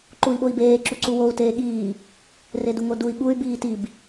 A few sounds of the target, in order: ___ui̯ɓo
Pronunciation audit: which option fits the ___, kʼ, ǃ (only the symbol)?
ǃ